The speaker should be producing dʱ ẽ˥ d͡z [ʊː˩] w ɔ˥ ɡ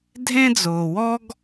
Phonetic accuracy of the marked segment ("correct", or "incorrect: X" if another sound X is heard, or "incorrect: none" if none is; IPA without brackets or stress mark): correct